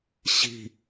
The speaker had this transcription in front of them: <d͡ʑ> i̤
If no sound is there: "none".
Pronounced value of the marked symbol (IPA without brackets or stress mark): ɕ